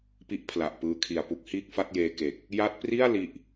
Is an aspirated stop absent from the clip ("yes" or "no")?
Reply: no